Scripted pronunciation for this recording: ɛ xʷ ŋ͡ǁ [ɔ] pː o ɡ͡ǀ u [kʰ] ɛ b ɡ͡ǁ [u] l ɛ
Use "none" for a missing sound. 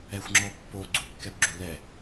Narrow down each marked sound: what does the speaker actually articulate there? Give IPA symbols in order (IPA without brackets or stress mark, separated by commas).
ɔ, kː, u